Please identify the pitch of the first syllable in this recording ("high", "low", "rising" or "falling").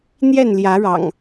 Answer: falling